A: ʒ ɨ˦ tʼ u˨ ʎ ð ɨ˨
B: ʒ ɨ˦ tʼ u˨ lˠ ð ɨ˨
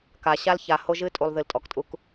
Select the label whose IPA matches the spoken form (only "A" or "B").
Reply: B